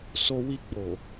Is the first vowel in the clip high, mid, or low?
mid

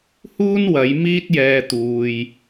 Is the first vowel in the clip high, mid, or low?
high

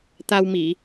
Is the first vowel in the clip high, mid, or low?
low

